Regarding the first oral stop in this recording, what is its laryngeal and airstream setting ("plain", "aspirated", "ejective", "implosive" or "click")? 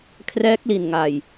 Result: aspirated